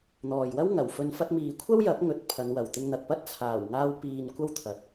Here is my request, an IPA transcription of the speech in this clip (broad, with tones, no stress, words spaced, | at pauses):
n̪ɔː˨jwɐ˥w ŋɐ˨˩wfɵ˨nfɐ˧t̚ miː˨kʷʰɐ˥wjɐ˨˥p̚ ŋɵ˨t̚ pʰɐ˨˧nwɐ˨˩wt̪ɪ˧ŋn̪ɐ˨k̚ pɐ˥t̚t͡sʰaː˨˩wŋaː˧w piː˨n kʷɐ˥wt̪ʰɐ˨t̚